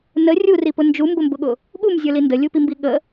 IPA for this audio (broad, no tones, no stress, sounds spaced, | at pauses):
n ə rʲ u r i p ʊ n d͡ʒ u m b ʊ m b ʊ ɠ ʊ | ɠ u m zʲ ə˞ l i n d ə lʲ u p i m b i ɠ ə